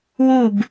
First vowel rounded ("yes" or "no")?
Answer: yes